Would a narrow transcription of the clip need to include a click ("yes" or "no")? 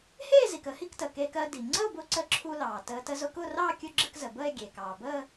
yes